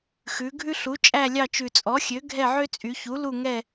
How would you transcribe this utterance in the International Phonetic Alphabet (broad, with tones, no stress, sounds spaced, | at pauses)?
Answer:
x ʉ˩˧ ɡʱ ʉ˦ ɬ u˩˥ t͡ʃʼ æ˦˨ lʲ ɑ˦˨ t͡ʃ ʉ˨˩ t͡sʼ ɔ˩˥ xʲ ø˩˥ ɡʱ ɛ˦˨ ʕ ø˦ t͡sʼ y˩˧ ç u˩˥ l u˦˨ ŋ ɛ˦˨